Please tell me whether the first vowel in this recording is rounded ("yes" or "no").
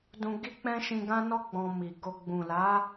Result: yes